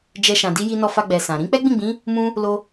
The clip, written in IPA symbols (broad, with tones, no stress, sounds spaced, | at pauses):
d͡ʒ ɛ˧ ʃ ã˨ d i˧ j i˧ n ɔ˧ f a˧ ɡ͡b ɛ˨ s ã˨ ɾ ĩ˨˦ k͡p ɛ˦ ɡ͡b ĩ˦˨ ɡ͡b ĩ˨˦ | m ũ˧ | l o˧